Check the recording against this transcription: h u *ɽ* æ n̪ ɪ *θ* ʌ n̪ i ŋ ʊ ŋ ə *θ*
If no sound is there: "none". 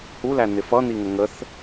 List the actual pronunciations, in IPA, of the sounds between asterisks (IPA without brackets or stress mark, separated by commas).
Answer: l, f, θ